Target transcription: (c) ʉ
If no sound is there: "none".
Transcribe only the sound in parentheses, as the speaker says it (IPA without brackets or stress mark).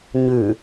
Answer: ɲ